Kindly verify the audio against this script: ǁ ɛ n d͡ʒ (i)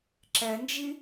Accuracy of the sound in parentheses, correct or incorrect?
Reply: correct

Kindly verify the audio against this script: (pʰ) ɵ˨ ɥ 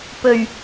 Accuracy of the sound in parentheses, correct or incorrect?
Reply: incorrect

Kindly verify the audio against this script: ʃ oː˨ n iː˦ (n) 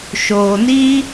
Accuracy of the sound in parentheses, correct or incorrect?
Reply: incorrect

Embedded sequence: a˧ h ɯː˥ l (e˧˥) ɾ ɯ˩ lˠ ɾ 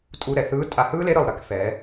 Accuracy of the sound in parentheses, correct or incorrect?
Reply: correct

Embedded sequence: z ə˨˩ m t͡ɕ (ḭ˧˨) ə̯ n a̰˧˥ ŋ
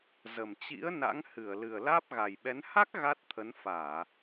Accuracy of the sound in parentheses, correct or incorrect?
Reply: incorrect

